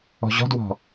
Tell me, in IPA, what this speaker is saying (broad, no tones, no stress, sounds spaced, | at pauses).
ɔ̤ ʑ ɔ̤ d w ɔ̤